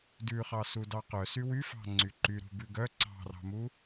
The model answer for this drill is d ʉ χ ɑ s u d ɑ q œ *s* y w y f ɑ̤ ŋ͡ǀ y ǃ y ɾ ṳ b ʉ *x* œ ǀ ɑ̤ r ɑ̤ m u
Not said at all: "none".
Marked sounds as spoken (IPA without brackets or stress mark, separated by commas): s, ɡ